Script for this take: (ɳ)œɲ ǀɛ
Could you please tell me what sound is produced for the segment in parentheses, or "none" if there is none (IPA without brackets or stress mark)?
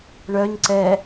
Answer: ɳ